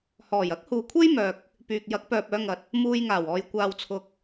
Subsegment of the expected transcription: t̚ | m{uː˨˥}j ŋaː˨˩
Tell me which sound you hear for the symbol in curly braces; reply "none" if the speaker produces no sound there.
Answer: uː˧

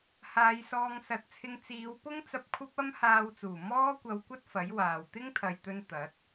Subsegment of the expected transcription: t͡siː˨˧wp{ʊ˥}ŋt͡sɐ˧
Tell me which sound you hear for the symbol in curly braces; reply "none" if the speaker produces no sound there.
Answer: ʊ˥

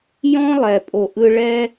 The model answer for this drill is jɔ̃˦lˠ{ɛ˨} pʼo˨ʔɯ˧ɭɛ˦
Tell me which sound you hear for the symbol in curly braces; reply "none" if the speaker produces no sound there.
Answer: ɛ˨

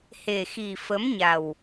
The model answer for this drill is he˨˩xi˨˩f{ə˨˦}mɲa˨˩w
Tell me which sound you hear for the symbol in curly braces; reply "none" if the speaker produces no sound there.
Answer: ə˨˦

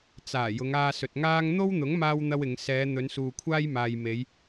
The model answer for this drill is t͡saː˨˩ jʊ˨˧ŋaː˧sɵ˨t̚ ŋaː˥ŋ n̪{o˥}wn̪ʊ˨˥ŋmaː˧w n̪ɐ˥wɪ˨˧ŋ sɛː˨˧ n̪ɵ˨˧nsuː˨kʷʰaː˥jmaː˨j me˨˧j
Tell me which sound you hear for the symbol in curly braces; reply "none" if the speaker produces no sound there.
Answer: o˥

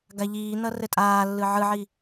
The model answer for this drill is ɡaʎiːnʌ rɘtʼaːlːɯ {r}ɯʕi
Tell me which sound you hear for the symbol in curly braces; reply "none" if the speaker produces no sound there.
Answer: ʕ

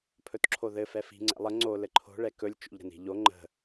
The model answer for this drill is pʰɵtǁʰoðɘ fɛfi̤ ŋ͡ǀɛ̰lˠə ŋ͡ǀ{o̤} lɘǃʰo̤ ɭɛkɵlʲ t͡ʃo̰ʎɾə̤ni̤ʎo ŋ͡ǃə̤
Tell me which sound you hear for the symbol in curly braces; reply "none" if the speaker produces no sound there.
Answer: o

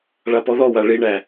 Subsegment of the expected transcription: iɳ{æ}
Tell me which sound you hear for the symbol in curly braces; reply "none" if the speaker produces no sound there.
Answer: æ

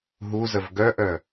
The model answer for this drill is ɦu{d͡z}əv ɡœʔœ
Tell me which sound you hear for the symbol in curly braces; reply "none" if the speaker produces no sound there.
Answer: z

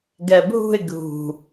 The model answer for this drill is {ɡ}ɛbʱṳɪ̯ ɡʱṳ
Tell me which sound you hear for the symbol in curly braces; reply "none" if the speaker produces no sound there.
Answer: ɡ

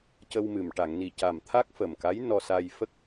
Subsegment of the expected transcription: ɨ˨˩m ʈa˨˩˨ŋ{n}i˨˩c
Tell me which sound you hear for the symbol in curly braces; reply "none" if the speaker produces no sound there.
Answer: n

